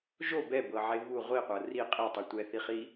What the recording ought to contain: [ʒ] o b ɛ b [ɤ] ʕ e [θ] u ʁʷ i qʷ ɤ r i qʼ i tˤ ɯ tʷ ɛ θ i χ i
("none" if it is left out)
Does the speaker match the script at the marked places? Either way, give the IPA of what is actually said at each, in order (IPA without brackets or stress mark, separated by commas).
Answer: ʒ, ɤ, β